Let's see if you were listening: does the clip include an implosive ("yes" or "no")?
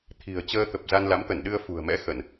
yes